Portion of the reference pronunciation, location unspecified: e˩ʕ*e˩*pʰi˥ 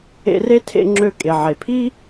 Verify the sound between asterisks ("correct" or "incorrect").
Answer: correct